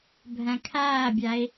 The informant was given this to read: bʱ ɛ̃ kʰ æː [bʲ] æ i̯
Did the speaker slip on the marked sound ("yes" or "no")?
no